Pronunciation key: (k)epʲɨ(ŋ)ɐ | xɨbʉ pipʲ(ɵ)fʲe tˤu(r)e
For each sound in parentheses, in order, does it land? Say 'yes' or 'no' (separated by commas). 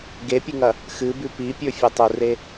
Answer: no, yes, yes, yes